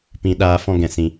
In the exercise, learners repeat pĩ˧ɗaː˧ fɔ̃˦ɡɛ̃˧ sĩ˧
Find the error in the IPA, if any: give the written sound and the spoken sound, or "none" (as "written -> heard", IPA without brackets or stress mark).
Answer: none